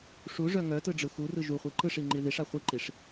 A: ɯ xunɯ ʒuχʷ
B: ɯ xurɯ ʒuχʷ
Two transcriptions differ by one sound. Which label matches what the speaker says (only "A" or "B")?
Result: B